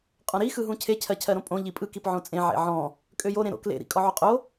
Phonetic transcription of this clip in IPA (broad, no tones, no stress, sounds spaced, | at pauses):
qʼ ɔ̃ ɾ i x ɯ ɦ ũ cʰ e cʰ ɜ cʰ ɜ ɾ õ pʼ õ ʎ i pʼ ɯ k i p ʕ õ t͡sʼ ẽ ʕ ḛ ʕ ɔ̃ | kʼ ø j o ɾ ẽ ɾ o̰ k l ḛ ɾ ḭ kʼ ɔ ʕ o qʼ o